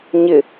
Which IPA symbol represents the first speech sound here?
ɲ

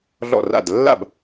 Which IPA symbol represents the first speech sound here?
ɮ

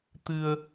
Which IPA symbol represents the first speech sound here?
t̪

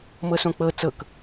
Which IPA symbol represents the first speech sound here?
m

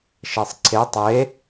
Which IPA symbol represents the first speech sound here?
ʃ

